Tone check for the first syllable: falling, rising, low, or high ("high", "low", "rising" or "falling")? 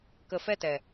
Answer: low